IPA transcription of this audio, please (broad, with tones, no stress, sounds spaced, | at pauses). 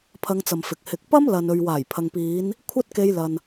pʰ ɐ˧ ŋ t͡s ɐ˨ m f ɪ˨ k̚ h ɪ˨ k̚ p ɐ˥ m l ɐ˨ n ɵ˨ ɥ w aː˨˩ j pʰ ɐ˨ ŋ p iː˨˧ n | kʷʰ ɐ˥ t̚ k e˧ j l ɐ˨ n